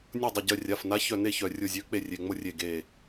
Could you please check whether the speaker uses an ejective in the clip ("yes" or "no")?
no